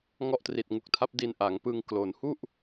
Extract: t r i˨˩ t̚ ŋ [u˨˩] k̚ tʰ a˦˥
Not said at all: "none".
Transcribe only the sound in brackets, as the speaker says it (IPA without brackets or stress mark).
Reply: u˨˩